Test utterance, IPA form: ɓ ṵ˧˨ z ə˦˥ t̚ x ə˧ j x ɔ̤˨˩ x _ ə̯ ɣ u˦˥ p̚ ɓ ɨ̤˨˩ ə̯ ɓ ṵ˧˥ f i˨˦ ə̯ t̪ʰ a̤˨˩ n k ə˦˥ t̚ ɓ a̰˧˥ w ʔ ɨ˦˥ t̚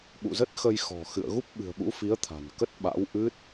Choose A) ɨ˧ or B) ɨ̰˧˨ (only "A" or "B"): B